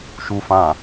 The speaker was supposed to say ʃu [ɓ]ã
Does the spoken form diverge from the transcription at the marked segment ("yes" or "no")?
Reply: yes